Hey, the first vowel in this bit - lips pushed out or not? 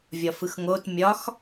yes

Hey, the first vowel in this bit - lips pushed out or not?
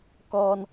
yes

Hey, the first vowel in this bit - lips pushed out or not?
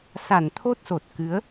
no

